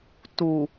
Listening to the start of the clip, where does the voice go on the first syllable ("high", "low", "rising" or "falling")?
low